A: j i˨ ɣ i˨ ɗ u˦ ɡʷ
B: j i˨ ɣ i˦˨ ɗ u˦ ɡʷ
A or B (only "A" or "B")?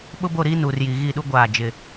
B